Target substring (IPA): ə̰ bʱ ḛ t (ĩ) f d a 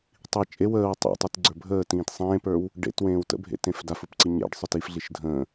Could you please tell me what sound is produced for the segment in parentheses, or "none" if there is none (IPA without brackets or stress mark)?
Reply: ẽ